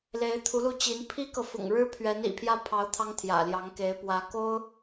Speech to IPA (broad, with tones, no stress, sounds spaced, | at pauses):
l e˧˥ ɪ̯ t̪ʰ u˧˥ l u˥˩ t͡ɕ i˧˥ n pʰ i˥ k ɤ˨ f ʊ̰˨˩ ŋ ɻ ɻ̩˥ pʰ ɥ ɛ˧˥ n ḭ˨˩ pʰ j ä˥˩ pʰ ɑ˧˥ ʊ̯ t̪ʰ ɑ˥ ŋ t̪ʰ j ä̰˨˩ l j ɑ˧˥ ŋ k e˧˥ ɪ̯ p w ä˧˥ k o˥ ʊ̯